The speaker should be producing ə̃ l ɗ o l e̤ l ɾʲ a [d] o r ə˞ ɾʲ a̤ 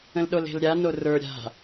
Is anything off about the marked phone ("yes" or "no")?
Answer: yes